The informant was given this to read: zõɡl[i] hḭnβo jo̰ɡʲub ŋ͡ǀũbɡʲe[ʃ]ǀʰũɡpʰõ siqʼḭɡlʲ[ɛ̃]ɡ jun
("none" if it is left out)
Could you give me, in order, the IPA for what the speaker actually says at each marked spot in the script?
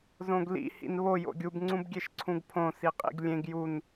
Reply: ḭ, ʃ, ẽ

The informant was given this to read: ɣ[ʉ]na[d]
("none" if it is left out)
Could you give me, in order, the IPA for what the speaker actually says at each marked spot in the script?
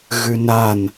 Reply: ʉ, n

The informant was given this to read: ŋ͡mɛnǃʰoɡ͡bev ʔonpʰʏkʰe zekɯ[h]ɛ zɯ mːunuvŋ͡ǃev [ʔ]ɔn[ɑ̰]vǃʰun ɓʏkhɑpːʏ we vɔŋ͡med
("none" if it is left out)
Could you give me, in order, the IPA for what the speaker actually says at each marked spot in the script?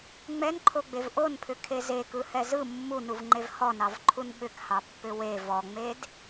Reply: h, h, ɑ

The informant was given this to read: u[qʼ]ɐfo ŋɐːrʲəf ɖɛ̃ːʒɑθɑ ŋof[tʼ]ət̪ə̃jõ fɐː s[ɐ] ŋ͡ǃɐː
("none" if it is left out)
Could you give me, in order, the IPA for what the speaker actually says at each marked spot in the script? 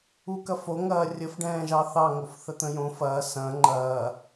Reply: k, θ, ɐ̃

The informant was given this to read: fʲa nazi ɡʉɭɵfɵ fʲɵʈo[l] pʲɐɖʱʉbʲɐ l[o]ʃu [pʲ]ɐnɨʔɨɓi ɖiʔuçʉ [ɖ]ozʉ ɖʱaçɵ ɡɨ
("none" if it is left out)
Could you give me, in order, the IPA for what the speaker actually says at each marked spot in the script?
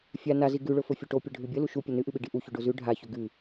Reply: none, u, pʲ, ɖ

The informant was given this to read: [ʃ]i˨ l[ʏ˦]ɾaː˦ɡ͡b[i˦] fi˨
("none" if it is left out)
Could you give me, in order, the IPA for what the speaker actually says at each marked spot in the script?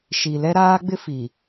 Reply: ʃ, ɛ˦, ɪ˦

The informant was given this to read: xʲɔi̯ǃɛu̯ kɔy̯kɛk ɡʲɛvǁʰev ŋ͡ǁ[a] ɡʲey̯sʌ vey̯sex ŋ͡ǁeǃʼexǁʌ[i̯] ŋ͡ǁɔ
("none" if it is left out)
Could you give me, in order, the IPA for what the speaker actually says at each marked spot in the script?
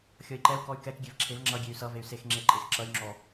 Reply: ʌ, y̯

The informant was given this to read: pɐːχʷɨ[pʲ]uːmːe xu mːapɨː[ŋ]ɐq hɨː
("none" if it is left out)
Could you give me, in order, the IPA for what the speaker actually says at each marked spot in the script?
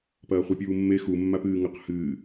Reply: pʲ, ŋ

